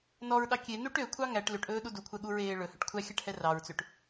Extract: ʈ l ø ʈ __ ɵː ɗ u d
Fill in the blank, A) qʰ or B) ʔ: B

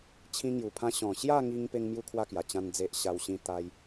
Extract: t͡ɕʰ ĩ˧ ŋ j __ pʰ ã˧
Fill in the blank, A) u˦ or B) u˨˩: B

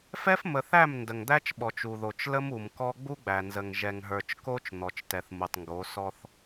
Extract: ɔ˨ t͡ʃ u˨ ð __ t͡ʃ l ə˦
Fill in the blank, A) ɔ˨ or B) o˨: B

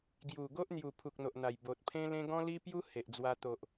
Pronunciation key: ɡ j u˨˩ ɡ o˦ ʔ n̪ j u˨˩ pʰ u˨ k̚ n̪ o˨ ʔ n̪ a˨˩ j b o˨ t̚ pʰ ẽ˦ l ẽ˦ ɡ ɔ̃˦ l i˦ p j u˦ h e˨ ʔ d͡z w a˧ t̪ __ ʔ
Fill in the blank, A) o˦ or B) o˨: B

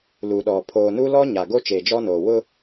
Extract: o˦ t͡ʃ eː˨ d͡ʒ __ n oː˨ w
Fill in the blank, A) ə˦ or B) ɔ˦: B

